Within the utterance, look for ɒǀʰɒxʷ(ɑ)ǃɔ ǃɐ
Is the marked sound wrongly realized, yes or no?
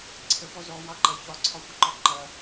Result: yes